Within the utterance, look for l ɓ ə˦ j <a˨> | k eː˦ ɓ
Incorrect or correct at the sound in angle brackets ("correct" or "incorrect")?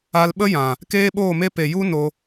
incorrect